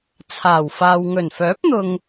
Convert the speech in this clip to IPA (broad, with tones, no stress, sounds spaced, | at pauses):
t͡sʰ aː˨˩ w f aː˨ w ŋ ɵ˨˩ n f œː˨˥ p̚ n̪ ʊ˨ ŋ